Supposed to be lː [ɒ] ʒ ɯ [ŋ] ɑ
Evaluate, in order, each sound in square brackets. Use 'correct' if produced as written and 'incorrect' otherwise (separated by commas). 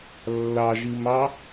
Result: incorrect, incorrect